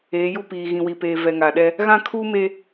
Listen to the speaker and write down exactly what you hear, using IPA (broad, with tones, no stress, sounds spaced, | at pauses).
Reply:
eː˨˦ j u˦ p iː˨ ɣ ĩ˨ w i˨ p eː˨ v ɛ˨ ŋ a˨ ɗ ɛ˦ | ɣ ã˦ kʰ uː˦ m e˦